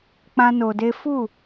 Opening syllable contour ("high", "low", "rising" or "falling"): high